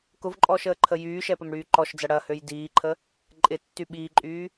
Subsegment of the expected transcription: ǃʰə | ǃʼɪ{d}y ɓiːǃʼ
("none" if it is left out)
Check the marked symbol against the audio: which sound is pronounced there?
tː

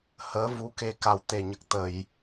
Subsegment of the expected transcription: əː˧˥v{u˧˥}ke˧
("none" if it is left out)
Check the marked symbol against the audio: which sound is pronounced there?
u˧˥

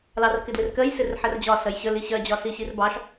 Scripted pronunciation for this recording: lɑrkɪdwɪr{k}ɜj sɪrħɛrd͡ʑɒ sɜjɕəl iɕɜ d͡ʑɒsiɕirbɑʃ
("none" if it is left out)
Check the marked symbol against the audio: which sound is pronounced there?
k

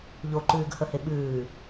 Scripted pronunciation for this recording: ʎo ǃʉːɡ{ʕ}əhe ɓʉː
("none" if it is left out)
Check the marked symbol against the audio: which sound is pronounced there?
h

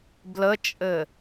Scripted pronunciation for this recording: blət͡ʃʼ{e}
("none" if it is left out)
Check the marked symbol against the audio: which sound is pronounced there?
ɘ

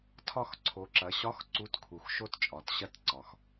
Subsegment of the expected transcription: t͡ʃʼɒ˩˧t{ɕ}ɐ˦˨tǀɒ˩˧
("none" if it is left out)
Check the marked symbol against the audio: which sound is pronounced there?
ɕ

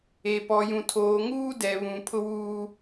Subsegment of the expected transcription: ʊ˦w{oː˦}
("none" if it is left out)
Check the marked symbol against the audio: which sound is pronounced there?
uː˦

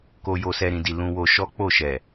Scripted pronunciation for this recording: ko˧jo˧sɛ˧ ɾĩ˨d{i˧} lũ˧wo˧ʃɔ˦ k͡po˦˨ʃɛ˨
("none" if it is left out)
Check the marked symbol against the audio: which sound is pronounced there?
i˨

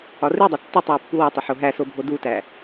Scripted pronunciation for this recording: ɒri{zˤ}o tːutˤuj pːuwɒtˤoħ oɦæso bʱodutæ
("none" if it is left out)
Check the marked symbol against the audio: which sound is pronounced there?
dˤ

